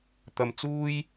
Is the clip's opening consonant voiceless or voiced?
voiceless